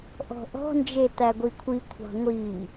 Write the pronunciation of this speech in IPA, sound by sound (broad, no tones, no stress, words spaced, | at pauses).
ʔɔ̤ʔɔ̤ nd͡ʒet̪æɡʷikʷʰi kʷʰɑ̤ŋʷi